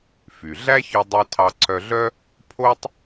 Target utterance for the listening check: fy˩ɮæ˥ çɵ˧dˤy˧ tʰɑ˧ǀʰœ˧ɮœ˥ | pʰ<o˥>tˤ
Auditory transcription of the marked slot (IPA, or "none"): o˥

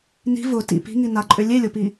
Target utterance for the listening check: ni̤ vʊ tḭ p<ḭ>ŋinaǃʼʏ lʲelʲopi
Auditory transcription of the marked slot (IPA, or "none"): i̤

